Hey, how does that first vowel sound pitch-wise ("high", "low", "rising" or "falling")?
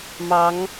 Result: rising